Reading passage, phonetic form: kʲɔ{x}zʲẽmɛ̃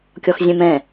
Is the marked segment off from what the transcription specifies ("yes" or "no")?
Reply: no